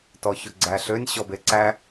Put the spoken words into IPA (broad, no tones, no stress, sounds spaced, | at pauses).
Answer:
t ɔ ç ʊ ɡ͡ǀ æ ɬ ø nʲ ɕ ɔ b e ǀ æ